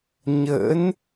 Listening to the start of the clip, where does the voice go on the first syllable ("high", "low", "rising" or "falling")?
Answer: rising